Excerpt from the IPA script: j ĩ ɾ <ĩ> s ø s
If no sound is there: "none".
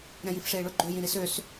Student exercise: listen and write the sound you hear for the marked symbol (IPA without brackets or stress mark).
i